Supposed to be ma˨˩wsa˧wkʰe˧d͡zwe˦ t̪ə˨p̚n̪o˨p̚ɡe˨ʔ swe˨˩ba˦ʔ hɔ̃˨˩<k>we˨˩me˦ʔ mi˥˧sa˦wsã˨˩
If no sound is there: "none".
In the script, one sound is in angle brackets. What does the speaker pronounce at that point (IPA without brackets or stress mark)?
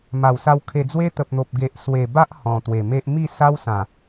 t̪